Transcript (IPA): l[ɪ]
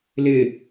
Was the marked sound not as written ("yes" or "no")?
no